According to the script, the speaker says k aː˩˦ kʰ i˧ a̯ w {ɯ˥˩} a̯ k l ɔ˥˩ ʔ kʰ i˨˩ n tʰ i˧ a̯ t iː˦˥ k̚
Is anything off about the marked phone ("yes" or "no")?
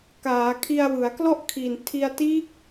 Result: yes